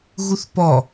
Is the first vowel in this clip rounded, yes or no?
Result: yes